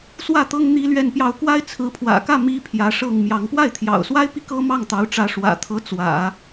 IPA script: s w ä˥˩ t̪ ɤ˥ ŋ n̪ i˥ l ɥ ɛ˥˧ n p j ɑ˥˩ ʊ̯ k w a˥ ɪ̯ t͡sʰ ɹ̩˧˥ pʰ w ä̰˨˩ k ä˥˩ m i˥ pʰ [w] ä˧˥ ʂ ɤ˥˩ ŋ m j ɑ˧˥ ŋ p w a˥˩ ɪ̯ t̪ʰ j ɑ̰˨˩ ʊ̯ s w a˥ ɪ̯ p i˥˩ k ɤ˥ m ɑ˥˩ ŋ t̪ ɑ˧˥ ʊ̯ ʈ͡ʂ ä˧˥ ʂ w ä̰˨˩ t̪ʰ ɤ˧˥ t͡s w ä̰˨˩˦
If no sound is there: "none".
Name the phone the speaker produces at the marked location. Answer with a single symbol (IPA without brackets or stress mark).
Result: j